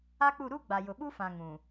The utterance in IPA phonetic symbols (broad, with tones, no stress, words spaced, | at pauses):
a˦k͡pu˦˨ ɾu˦ ɡ͡ba˨jʊ˨ɓu˦fã˨ ŋũ˨